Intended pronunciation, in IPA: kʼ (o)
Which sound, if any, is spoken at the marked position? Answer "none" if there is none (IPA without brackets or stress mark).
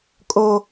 o